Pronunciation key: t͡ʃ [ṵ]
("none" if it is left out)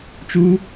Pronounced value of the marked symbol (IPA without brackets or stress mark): u